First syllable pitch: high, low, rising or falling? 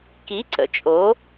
rising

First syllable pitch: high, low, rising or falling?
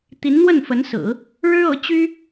rising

